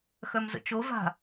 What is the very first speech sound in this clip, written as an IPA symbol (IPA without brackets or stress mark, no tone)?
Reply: x